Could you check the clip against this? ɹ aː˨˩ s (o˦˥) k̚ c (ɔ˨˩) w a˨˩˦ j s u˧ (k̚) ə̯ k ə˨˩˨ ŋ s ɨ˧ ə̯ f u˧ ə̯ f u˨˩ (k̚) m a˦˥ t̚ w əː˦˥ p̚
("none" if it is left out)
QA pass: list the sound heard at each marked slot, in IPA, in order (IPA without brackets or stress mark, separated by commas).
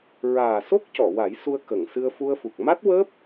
o˦˥, ɔ˨˩˨, none, k̚